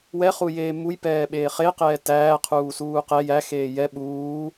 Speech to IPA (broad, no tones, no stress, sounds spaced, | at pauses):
w ɛ χ u j eː m u j p ɛː ɓ eː χ e q ɛː t æː qʰ uː s uː q ɛ j æ x eː j ɛ ɓ uː